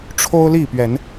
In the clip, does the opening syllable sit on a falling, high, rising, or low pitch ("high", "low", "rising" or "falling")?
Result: high